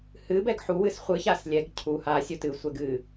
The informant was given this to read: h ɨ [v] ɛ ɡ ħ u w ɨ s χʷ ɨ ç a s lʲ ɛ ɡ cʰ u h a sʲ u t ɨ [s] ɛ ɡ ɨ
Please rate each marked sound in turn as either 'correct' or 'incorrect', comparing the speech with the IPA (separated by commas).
incorrect, incorrect